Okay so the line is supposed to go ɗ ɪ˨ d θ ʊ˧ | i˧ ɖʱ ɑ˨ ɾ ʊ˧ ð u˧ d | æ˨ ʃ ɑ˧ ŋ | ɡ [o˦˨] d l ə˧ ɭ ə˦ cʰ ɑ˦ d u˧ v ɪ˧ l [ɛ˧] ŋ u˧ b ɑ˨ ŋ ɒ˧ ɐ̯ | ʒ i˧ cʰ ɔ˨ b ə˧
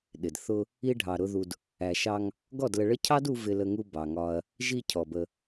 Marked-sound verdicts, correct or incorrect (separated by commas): incorrect, incorrect